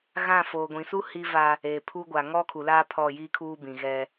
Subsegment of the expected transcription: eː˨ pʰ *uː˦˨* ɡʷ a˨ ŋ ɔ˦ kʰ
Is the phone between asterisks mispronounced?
yes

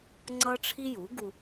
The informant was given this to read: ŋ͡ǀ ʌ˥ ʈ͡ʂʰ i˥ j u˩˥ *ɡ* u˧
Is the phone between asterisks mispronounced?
no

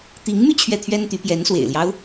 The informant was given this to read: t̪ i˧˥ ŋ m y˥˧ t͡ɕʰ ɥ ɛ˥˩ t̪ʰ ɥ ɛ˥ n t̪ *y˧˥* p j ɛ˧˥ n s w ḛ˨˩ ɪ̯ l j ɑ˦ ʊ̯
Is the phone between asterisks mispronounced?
no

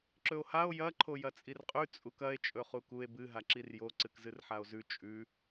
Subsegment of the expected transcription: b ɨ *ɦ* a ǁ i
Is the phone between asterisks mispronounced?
no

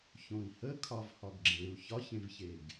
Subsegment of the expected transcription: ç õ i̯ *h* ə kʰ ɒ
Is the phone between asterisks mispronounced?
no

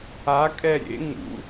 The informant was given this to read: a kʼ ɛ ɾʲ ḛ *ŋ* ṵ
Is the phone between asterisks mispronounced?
no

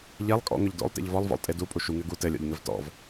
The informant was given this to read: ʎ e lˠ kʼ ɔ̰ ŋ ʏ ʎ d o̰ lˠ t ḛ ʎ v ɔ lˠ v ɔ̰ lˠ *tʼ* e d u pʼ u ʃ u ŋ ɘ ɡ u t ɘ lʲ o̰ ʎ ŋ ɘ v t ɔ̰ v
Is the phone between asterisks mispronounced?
no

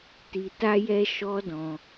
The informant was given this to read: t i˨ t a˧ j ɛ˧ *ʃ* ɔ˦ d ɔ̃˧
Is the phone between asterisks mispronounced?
no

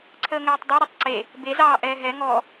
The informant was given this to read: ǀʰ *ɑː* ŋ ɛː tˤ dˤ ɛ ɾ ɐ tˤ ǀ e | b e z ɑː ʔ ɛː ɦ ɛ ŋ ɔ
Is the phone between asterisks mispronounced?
yes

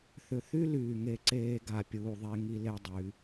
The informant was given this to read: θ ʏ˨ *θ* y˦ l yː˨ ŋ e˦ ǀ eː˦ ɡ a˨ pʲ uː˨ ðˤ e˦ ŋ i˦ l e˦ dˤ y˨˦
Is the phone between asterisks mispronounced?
no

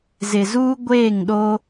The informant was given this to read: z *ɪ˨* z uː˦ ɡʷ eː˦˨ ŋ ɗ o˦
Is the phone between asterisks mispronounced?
no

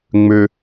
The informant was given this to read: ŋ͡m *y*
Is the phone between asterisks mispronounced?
yes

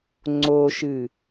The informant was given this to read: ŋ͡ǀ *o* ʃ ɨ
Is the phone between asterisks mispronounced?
no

